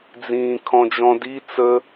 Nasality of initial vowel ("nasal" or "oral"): nasal